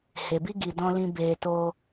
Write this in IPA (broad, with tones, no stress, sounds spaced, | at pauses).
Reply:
h e˨ b i˦ ɡ i˨ d ɔ̃˧ l ĩ˧ b eː˧ t oː˦